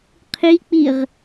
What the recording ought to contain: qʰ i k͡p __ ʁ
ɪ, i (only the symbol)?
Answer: i